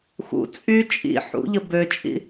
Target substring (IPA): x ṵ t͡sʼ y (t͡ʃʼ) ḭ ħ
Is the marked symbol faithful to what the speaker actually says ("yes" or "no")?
yes